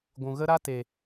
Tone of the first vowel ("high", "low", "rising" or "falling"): low